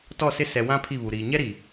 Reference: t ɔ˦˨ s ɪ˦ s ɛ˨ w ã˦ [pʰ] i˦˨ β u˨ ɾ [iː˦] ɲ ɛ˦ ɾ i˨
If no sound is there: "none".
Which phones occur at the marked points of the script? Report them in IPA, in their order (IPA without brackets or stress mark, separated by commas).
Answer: pʰ, iː˨